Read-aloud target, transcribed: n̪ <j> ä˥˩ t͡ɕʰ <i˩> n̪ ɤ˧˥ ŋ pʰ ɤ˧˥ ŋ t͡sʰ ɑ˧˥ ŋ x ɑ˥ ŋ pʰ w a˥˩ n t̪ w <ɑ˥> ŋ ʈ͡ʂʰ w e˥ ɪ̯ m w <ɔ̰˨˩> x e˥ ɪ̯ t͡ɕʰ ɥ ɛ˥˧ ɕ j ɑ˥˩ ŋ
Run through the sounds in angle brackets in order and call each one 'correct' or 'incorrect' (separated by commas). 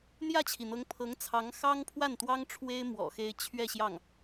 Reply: correct, correct, correct, correct